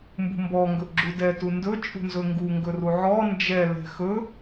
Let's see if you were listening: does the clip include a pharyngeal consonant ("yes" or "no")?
yes